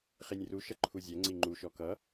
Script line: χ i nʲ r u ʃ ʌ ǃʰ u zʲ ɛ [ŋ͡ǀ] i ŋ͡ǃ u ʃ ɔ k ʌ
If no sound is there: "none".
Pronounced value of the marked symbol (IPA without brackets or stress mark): ŋ͡ǀ